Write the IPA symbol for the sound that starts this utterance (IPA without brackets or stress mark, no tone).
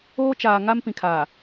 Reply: oː